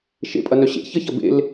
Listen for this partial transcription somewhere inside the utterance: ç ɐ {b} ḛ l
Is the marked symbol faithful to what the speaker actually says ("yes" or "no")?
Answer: yes